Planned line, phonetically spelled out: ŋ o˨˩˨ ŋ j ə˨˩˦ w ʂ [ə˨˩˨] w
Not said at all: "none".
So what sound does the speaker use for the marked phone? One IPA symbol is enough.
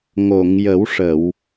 ə˨˩˨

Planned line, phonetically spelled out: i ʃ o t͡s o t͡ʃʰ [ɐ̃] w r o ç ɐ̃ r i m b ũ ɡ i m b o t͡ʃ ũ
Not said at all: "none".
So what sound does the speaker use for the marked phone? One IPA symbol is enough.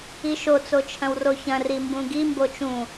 ɐ̃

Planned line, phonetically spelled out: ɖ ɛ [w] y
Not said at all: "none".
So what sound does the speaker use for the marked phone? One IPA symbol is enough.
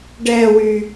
w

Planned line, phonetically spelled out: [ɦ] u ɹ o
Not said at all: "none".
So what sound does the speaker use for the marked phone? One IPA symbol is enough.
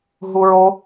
ɦ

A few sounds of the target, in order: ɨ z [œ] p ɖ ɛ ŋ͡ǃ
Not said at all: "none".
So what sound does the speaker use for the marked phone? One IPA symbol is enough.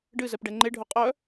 ɛ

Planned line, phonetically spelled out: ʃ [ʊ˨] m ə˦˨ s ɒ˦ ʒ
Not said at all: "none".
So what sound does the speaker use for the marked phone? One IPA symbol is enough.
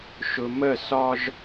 ʊ˨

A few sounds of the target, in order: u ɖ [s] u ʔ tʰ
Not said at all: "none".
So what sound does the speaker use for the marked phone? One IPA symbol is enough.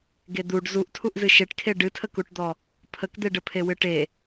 z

